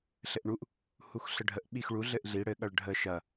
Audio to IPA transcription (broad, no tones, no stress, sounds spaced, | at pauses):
ɬ ɘ ʔ ɳ u ʔ | h u x ɬ ə ɖʱ ə ʔ ɓ i x ɭ u ɮ ɘ ʔ ɮ i ɽ ɘ ɠ ɐ ɭ ɖʱ ə ʃ ɐ